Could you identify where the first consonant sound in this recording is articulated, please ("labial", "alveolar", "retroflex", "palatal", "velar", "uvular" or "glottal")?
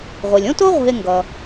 uvular